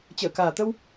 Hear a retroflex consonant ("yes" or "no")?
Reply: no